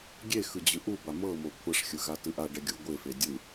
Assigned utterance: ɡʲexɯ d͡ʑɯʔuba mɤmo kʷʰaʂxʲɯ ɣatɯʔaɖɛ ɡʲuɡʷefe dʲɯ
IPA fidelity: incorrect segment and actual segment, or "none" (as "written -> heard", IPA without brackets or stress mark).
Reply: none